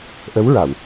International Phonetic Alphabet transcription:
ʔ ə˧˥ w ɹ a˨˩˨ w

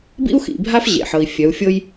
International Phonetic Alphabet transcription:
b ḭ˦ u̯ x ḭ˨ bʱ a˦ f ʑ ḛ˨ ħ ɤ˨ i̯ fʲ œ˨˦ u̯ fʲ ɤ˦ j

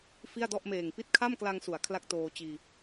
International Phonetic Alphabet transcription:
f i˥˩ a̯ d ɔ˥˩ ʔ m eː˨˩ ŋ p i˥˩ t̚ kʰ a˥˩ m k l a˧ ŋ s u˩˦ a̯ kʰ l a˥˩ k̚ t oː˧ t͡ɕ iː˧

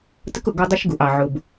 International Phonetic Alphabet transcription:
t ə˦ k ʊ˨ ɡ ɔ˦ dˤ ʊ˦ ʃ ɡ u˨ ʔ ɑ˨ ʕ ʊ˨ b

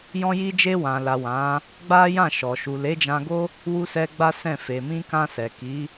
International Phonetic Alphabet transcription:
j ɔ̃˧ j i˧ d͡ʒ e˧ w ã˨ l a˨ w ã˨˦ | ɡ͡b a˦ j ã˦˨ ʃ ɔ˨ ʃ u˨ l e˨˦ d͡ʒ ã˧ ɡ o˦ | w u˧ s ɛ˧ ɡ͡b a˦ s ɛ̃˦˨ f e˨ m ĩ˧ k ã˧ s ɛ˨ k i˨˦

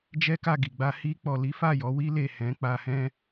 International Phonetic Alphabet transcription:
d͡ʒ ɛ˦ k a˦˨ ɡ i˨ ɡ͡b a˧ h i˧ k͡p ɔ˨ l i˨˦ f a˦˨ j ɔ˨˦ w i˦ l e˦˨ h ɛ̃˨˦ k͡p a˧ h ɛ̃˧

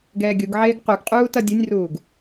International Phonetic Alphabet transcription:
ɡ ɛː ɡʲ u ɡ ʕ eː ɡ q u ɡ qʼ uː t ʌ dʲ u nʲ r uː ɡ

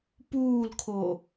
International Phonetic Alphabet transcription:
p uː l kʰ o

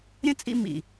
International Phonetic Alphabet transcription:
ɾʲ ə̃˦ t͡sʼ ḭ˧ m ḭ˨

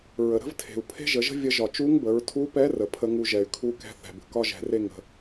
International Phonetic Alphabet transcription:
ɹ ə˩ ɾ ə̤˥ v tʰ e̤˩ u̯ pʰ e̤˥ ʒ ə˩˧ ʒ ə̤˥ vʲ ə˧˥ ʒ ɒ˩ t͡ʃ u˧˥ ŋ b ə˩˧ ɹ tʰ u˧˥ p ɛ˧˥ r ə˩ pʰ ə˧˥ ŋ u˧ ʒ ɛ˩ y̯ kʰ u˧˥ k ɛ̤˧ θ ɛ̤˩ b ə̤˩ k ɒ˥ ʒ ɛ̤˩˧ r e˥ ŋ ə̤˩˧

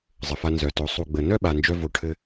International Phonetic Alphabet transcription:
zˤ ɘ˨ f a˧ n z œ˨ t o˨˦ sˤ u˨ ɡ͡b ə˨ n œ˦ ɓ a˨ n d͡ʒ œ˧ v o˧ ʈʰ ɘ˦

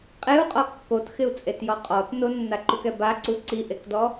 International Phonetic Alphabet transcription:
qʼ e u̯ qʼ ɔ kː o t x ɪ u̯ t͡sʼ e t j ɔ qʼ ɔ t n ʊ nː a ǃ u k ɛ b a ǀ u ǀ i ʔ e k d ɔ

